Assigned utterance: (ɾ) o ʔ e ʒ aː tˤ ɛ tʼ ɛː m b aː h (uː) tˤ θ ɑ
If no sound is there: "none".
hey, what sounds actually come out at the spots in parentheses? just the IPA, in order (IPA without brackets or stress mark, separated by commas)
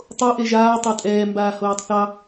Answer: tˤ, oː